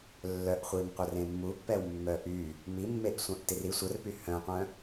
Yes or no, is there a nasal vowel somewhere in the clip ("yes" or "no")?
yes